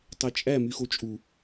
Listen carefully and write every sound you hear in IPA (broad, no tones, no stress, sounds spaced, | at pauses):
tˤ e t͡ʃʼ æ m y x o t͡ʃʼ u